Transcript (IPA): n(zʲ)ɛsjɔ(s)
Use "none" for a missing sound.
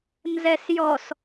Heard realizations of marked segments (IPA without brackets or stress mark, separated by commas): z, s